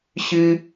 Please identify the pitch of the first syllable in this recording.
high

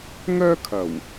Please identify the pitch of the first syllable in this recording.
high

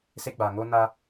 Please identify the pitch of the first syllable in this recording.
high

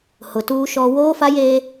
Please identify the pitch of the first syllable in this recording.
low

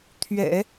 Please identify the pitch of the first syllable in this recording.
low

